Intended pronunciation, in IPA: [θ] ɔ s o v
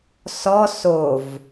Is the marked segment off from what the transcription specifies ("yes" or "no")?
yes